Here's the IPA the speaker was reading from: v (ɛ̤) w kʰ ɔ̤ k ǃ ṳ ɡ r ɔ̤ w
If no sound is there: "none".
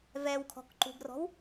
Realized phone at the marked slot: ɛ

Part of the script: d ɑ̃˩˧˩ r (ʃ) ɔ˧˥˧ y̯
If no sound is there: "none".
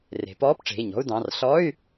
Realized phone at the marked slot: ɬ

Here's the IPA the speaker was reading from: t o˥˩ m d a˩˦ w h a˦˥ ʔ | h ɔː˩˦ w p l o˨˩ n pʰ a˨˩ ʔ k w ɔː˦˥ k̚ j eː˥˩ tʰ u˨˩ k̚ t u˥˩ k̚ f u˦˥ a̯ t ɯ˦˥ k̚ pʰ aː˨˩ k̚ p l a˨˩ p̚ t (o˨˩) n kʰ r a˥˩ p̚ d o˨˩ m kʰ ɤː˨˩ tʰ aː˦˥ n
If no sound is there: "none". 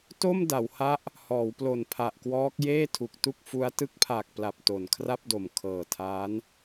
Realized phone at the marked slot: o˨˩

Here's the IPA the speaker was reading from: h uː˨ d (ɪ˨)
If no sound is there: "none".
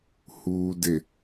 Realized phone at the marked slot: ɪ˨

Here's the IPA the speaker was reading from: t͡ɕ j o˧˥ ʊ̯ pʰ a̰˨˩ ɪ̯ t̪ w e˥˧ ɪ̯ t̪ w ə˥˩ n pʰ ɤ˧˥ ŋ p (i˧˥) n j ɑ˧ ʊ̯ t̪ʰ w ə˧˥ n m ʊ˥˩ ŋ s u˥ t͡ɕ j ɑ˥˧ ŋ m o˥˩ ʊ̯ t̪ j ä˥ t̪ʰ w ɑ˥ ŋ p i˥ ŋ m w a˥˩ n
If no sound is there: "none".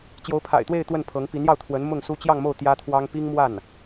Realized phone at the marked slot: i˧˥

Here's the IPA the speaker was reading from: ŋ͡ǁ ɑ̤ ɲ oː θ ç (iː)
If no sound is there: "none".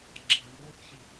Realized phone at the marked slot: i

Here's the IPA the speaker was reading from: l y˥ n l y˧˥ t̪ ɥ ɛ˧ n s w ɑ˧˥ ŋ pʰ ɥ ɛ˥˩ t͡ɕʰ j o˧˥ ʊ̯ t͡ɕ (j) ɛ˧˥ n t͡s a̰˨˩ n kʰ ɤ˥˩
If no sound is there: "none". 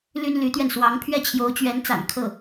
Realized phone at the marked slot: ɥ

